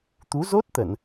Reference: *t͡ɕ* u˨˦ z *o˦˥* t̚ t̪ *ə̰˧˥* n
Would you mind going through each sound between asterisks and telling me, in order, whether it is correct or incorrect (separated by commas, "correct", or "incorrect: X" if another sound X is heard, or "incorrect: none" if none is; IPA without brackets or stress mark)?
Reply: incorrect: t̪, correct, incorrect: ə˧˩˨